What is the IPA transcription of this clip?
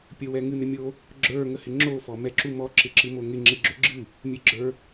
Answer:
pʲ ə w ɛ ŋ ɨ n ɪ mʲ o | ɡ͡ǁ ə˞ ŋ ə h ɪ ŋ͡ǁ o f ɔ m ɛ ǁ u m ɔ ǁ ɪ ǁ ɨ m o ŋ ɪ ŋ͡ǁ ɪ ɡ͡ǁ ø ɡ͡ǁ ɨ | mʲ ɨ ɡ͡ǁ ə˞

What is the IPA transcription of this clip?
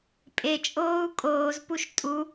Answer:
pʼ e t͡ʃʼ oː u̯ kʼ oː z p u ʃ tʼ u

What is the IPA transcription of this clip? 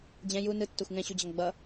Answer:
d͡ʑ ɛ̃ j u n ɯ tː o xʷ ŋ ɛ̃ ɕ u d͡ʑ ʌ ŋ ɡ͡b ʌ

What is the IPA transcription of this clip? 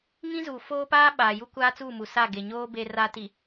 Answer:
ŋ ĩ˦ z uː˨ f oː˦ p aː˦ ɓ aː˨ j u˦ kʷ aː˦ t͡s uː˦˨ m u˨ s a˦˨ ɡ e˨ ɲ oː˦ b e˦ r a˦ t i˨

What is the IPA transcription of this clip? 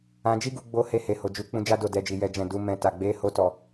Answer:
ã˧ d͡ʒ i˦ ɡ u˧ ɡ͡b o˧ h e˧ h e˨ h o˨ d͡ʒ u˨˦ k͡p ũ˧ d͡ʒ a˦ d o˦˨ d ɛ˧ d͡ʒ i˨ j ɛ˨ d͡ʒ ɛ̃˨ d u˨˦ m ɛ̃˧ t a˨ ɡ͡b e˨˦ h o˧ t ɔ˨

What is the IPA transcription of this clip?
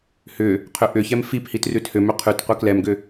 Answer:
h ʏ | qʰ ʏ ʔ ʏ ç ɛ m f i p h i t r ʉ t h ʏ m ʏ qʰ ʉ t qʷ ɛ k l ɛ m ɡ ʏ

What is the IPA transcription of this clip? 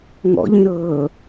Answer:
ŋ ɔ̰ ʎ ĩ ɾ ɤː

